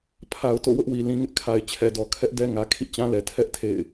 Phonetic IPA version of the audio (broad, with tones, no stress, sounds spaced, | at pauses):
pʰ a˨ ʊ̯ t o̰˦˨ w ʊ˦ ʔ w i˨ l ĩ˨ ŋ ɪ˦ ʔ kʰ a˨ ɪ̯ t͡ɕʰ ɛ˨ d ɔ˨ kʰ ɛ˦ ʔ d ɛ˦ ŋ ä˨ kʰ ḭ˦˨ t͡ɕ ã˦ l ɛ˨ tʰ ɛ˦ ʔ tʰ ḛ˦˨ ɪ̯